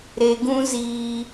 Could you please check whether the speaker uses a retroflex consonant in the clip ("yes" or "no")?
no